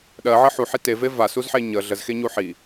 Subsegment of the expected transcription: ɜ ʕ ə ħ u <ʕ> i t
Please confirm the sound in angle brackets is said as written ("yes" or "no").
no